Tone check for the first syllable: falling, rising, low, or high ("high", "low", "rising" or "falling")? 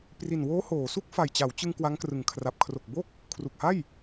low